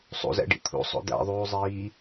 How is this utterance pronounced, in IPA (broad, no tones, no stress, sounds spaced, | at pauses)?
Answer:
sˤ ṵ z æ̰ ɖ ḭ t̪ʰ ṵ sˤ o̰ d̪ æ̰ ðˤ uː zˤ iː